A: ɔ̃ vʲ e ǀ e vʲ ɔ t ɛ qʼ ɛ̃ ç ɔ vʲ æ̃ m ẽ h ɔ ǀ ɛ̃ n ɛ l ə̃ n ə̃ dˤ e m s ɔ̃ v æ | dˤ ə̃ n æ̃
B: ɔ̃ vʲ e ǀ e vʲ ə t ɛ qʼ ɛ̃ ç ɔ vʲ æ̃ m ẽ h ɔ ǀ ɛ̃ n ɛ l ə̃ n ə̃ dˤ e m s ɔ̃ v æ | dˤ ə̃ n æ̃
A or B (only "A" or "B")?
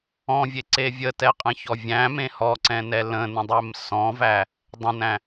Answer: B